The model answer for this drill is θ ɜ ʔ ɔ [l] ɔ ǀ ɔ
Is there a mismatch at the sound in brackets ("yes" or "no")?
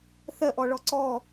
yes